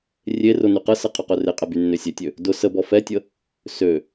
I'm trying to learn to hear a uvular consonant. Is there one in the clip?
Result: yes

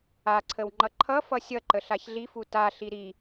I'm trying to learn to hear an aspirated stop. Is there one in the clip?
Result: yes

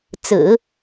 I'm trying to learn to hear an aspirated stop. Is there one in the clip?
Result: no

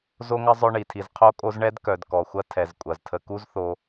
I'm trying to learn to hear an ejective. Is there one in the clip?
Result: yes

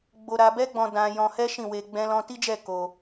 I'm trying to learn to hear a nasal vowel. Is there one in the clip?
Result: yes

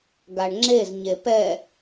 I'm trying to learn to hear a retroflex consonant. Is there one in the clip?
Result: yes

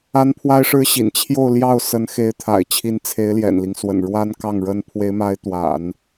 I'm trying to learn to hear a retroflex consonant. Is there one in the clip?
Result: yes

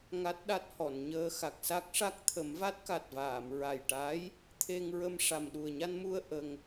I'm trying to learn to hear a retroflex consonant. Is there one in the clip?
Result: yes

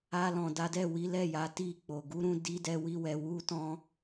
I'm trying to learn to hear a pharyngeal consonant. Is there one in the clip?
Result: no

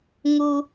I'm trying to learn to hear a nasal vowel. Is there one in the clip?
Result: no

